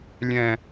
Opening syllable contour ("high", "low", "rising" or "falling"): high